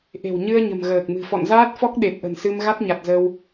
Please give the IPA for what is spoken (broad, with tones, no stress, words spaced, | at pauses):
ʔe̤˨˩w ɲɨ˧ə̯ ɲə̤˨˩mɣəː˨˩k̚ mɨ̤˨˩ fɔ̰˧˨nzaː˦˥t̚fɔ˦˥k̚ ɗe˨˩t̚ʔə̤˨˩nsɨ˧m ɣa˦˥t̚ɲa˨˩t̚zə˧w